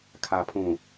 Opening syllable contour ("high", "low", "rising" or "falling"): low